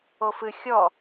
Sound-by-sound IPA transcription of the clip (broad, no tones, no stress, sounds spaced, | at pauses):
o f ɨ xʲ ɔ